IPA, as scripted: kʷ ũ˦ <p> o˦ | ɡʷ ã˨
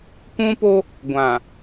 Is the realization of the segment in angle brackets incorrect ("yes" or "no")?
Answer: no